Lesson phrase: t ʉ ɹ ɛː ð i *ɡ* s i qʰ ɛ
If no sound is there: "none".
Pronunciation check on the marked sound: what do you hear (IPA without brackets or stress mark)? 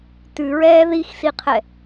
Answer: x